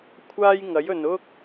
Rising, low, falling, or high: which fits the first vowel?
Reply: high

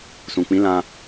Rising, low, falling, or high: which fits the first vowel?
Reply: low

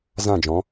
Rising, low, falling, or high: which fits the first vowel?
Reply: falling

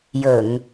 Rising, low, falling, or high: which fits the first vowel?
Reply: low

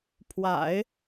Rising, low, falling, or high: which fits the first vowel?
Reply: low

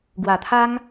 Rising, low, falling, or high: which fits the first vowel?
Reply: low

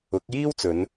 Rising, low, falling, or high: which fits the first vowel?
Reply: rising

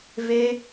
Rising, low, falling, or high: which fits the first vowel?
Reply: high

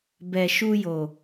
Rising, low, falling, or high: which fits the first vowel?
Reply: low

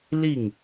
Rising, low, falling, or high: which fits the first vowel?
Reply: falling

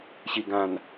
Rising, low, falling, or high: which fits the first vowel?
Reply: low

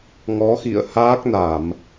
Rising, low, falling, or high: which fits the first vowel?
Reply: rising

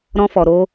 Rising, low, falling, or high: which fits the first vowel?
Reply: high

